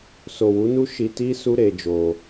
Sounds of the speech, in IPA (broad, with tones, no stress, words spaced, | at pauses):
so˨ wu˨˦nu˦ ʃi˧ti˦ su˦ɾe˧ d͡ʒo˧